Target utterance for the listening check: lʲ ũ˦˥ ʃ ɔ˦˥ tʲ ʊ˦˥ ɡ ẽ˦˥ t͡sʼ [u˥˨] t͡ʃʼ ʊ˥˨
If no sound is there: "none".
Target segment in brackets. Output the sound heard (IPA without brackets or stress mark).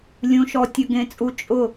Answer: u˦˥